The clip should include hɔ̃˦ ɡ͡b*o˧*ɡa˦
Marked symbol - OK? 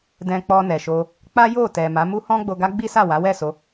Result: yes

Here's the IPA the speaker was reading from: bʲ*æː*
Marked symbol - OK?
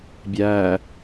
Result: yes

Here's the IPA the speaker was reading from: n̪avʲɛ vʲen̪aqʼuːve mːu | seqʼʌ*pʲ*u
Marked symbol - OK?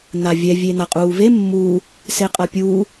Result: yes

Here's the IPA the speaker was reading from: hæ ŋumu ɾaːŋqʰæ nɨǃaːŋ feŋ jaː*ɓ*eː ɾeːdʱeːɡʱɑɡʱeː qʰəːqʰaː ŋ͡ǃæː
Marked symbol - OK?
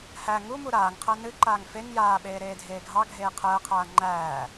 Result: yes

